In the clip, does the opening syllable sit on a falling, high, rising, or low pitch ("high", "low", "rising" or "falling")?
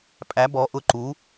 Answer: rising